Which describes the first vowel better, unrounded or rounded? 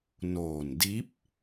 rounded